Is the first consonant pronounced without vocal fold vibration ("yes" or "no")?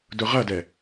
no